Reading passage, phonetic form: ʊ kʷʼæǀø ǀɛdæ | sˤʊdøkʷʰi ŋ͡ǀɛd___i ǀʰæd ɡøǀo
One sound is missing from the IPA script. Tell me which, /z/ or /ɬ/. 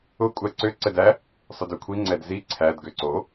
z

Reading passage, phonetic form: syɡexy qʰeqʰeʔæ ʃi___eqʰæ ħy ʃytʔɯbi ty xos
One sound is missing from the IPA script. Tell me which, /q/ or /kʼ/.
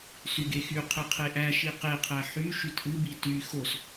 q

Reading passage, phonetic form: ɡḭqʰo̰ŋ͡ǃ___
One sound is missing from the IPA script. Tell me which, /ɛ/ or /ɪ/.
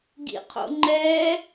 ɛ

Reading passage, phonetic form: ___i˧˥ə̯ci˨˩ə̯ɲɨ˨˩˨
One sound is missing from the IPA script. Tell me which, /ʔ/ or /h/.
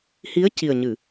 h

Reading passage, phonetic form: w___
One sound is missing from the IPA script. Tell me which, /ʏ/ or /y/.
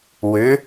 ʏ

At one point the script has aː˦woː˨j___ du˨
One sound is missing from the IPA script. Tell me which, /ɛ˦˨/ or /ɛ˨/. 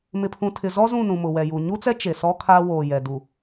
ɛ˨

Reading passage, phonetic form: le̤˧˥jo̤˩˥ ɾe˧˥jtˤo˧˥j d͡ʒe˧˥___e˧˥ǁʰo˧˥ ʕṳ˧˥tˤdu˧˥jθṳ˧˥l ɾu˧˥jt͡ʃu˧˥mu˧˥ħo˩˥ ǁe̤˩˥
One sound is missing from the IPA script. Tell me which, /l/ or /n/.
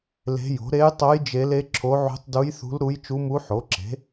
l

